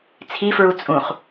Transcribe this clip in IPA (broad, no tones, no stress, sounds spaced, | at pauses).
t͡sʰ i f ɹ u t͡sʼ ũ χ